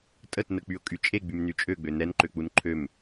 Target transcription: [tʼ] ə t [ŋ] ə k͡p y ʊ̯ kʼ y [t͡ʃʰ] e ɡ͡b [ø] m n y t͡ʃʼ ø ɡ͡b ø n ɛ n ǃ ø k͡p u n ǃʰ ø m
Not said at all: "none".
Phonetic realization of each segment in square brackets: tʼ, n, t͡ʃʼ, y

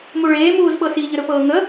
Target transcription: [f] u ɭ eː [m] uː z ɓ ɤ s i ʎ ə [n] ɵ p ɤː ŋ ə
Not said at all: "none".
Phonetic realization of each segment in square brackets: m, m, ɾ

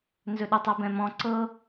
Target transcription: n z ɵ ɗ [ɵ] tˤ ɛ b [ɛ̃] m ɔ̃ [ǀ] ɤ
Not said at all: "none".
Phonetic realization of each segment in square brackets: ɵ, ɛ̃, ǀ

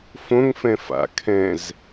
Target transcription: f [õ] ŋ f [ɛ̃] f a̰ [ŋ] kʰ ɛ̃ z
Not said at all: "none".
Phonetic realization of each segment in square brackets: õ, ɛ̃, none

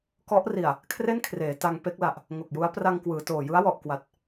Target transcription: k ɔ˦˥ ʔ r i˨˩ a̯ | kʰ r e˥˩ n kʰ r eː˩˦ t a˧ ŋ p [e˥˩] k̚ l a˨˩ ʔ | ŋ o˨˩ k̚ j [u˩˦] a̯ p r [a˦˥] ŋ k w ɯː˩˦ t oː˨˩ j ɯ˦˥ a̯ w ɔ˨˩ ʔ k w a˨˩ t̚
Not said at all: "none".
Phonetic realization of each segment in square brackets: e˦˥, u˦˥, a˧

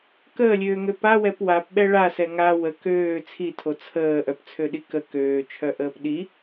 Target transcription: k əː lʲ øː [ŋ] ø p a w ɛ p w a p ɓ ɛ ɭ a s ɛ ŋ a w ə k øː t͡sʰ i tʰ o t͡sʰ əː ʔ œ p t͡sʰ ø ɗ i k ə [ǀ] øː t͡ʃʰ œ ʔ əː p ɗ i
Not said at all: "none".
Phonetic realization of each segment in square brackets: ŋ, k

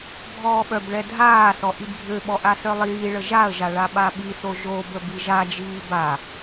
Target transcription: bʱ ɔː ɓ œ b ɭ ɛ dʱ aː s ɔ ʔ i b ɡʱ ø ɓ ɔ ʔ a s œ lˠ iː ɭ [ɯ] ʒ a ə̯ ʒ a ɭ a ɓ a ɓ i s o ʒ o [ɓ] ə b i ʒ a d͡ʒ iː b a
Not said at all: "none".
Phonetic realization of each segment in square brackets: ə, b

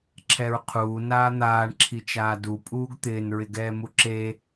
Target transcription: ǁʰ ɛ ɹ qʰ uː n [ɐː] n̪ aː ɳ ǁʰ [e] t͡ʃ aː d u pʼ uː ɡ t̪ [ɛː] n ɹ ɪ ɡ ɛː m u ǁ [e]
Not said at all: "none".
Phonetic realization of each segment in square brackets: aː, i, ɪː, e

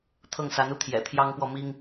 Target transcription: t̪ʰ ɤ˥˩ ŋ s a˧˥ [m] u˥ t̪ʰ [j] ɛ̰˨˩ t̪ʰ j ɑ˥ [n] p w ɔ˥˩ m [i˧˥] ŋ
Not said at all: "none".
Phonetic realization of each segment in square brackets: n, j, ŋ, i˥

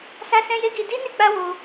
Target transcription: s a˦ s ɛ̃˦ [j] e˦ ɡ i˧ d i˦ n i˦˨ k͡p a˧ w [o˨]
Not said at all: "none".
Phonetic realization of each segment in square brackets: j, o˧

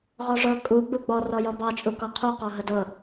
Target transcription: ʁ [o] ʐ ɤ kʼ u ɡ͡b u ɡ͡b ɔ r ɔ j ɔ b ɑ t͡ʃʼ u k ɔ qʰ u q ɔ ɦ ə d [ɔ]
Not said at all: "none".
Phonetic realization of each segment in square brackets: ɔ, ɤ

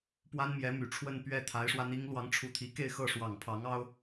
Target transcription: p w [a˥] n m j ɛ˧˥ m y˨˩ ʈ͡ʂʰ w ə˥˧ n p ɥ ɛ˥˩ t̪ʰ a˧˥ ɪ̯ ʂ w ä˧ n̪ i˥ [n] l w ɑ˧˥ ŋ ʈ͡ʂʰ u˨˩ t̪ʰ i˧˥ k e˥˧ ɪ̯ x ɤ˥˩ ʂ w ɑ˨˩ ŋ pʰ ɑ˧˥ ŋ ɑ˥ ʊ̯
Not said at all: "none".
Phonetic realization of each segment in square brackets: a˥, ŋ

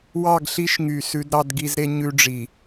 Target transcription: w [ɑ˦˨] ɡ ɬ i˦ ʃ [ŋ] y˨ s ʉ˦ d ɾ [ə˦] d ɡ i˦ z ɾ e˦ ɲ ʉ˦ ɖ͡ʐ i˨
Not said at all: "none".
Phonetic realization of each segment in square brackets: ɑ˦˨, ŋ, ɑ˦

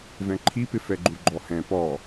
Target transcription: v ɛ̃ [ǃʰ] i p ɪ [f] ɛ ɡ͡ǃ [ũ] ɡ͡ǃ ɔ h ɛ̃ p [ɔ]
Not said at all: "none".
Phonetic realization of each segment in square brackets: ǃʰ, f, u, ɔ

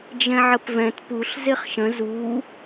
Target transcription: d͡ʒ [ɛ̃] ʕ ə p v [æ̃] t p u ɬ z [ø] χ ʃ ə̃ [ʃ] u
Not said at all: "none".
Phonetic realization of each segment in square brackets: ɛ̃, ɛ̃, e, z

